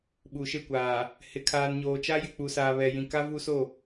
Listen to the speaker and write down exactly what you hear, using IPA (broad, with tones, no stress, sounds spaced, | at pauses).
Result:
ɓ u˨ ʃ e˦˨ kʷ aː˨ | h ɪ˨ kʰ aː˨ n ɲ oː˨ t͡ʃ a˦ j ɪ˨ k͡p u˨ s aː˨ β ɛ˨ j ĩ˨ k a˦ v u˦ s o˦˨